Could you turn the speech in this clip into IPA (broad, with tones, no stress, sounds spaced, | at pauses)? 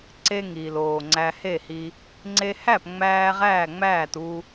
ǀ e˧ ŋ iː˨˩ l oː˨˩ ŋ͡ǀ æ˧ h e˥˩ h i˧ | ŋ͡ǀ e˧ h æ˥˩ p ŋ͡m æː˧ ʁ æː˥˩ ŋ͡m æː˥˩ t u˧